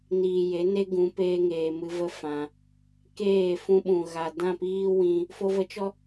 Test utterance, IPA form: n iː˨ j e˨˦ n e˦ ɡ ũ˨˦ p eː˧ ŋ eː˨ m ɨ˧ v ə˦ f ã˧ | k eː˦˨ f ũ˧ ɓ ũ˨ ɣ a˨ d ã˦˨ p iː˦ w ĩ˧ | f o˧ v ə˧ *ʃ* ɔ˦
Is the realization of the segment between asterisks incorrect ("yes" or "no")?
yes